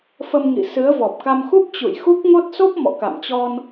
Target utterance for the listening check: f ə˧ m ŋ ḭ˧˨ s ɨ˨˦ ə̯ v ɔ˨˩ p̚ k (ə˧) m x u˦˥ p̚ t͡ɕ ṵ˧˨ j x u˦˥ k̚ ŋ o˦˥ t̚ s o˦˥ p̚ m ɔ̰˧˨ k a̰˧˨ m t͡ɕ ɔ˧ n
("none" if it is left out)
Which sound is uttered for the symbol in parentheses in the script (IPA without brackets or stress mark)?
a˧